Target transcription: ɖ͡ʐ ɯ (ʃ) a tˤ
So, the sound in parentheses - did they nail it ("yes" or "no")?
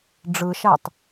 yes